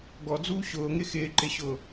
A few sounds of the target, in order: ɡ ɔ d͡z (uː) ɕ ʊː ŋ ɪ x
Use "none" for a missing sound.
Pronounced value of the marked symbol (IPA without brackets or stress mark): uː